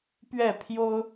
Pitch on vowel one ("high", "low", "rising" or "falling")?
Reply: falling